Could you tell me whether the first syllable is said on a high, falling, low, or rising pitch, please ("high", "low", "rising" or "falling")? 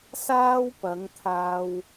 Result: high